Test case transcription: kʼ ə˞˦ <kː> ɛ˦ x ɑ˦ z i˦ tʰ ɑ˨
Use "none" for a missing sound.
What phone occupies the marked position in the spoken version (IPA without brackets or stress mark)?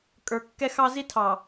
kː